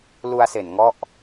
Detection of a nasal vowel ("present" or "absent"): absent